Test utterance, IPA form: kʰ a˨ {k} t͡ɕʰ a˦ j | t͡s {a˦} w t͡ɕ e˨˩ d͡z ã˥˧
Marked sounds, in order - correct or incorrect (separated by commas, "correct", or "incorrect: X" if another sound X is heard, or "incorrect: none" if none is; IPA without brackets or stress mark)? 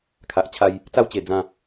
incorrect: ʔ, correct